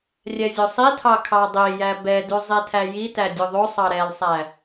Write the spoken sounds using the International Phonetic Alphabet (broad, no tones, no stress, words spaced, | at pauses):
rʲɛzʲosˤitʰɑ kʰɑdˤijæ bɛdʉzˤitʰæ jitæ dʲoðˤosˤɑ ɾɛlsˤæ